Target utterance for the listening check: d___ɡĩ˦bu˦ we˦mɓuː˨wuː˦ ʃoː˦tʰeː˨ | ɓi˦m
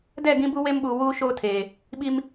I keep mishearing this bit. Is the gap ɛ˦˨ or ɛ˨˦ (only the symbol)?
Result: ɛ˦˨